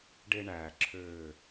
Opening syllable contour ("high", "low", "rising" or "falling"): high